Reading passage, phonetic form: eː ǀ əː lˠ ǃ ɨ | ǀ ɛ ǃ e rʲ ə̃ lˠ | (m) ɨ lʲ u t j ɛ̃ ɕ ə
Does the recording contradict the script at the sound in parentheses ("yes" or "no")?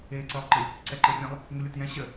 yes